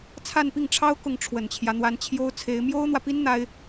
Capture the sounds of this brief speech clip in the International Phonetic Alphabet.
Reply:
t͡sʰ a˥˧ n p i˥˩ ŋ ʈ͡ʂʰ ɑ˥ ʊ̯ k ʊ˥˩ ŋ ʈ͡ʂʰ w ə˨˩ n t͡ɕʰ j ä˦ n̪ w a˧˥ n t͡ɕʰ j o˥ ʊ̯ t͡sʰ e˧˥ ɪ̯ m j o˥ ʊ̯ n̪ w ä˨ p i˥ n n̪ a˥ ɪ̯

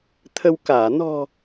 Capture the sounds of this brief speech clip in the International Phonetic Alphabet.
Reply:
t̪ʰ ə˧ w k aː˧˩ n ɔ̤˨˩

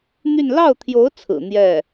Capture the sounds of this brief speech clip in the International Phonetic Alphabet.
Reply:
n̪ y˥˧ n l ɑ˥˩ ʊ̯ t̪ʰ j o˧˥ ʊ̯ t͡sʰ ɹ̩˨˩ n̪ j ɛ˥˩

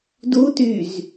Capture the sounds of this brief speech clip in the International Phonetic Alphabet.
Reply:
d u t y z

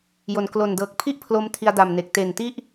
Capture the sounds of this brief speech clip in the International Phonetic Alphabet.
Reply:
j o˩˦ n k l o˨˩ n d ɤː˨˩ k̚ pʰ i˥˩ ʔ pʰ l o˧ m tʰ i˧ a̯ d a˨˩ m n e˨˩ k̚ t e˨˩ n t i˥˩ ʔ

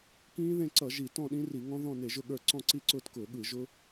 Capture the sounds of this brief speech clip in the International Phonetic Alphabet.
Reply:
k ĩː˦˥ ð ẽ˥˨ ǀ ʌ˧˩˧ ʒ i˧˩˧ t ɔ̃˥˨ ɗ ĩ˦˥ r i˧˩˧ ŋ ɔ̃˦˥ ð ɔ̃˥˨ n e˧˩˧ ʒ ʊ˥˨ ɠ ə˞˥˨ ǀ ɔ̃˥˨ ǀ i˥˨ ǀ ʊː˥˨ t k ʊː˧˩˧ ɠ ɯ˧˩˧ ʒ ʊ˦˥

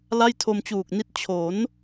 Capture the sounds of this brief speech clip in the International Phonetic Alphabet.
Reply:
l a˥˩ j tʰ o˧ m t͡ɕ uː˨˩ k̚ n i˥˩ t̚ t͡ɕʰ o˩˦ n

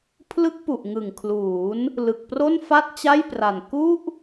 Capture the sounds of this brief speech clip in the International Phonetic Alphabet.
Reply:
pʰ l ɯ˦˥ k̚ p u˨˩ ʔ ŋ ɯ˨˩ ŋ kʰ l uː˩˦ n | l ɯ˨˩ k̚ p r o˥˩ n f a˥˩ t̚ t͡ɕ a˥˩ j p r a˨˩ n k u˥˩ ʔ

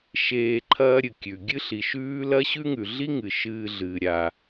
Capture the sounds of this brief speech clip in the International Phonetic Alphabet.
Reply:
ʃ eː˧ ǃʰ ɐː˥ ɾʲ ɨ˩ kʲ ʉ˩ ɡʲ ɨ˥ ɬ i˩ ʃ ʉː˥ l ɐ˥ ɕ ʉ˥ ŋ ʉ˩ ɮ i˥ ŋ ɨ˩ ʃ ɨː˧ ɮ ɨː˩ ɾʲ a˩

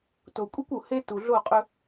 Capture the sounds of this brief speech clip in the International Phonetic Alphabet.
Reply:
t o˨ kʷʼ e˦ kʷ u˨ h e˦ t u˨ ɮ o˦˨ qʼ ɵ˦

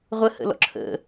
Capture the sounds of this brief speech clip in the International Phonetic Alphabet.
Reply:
ʁʷ ə h ə̰ l ɔ̰ ǁʰ ə̰

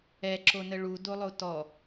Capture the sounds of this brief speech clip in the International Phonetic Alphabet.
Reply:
ɛ ǁ o n ə ɭ u d o lˠ o t ɔ

